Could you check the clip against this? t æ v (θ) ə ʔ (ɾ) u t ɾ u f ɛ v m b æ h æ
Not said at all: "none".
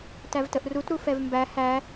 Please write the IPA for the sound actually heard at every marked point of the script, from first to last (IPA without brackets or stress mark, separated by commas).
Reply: t, r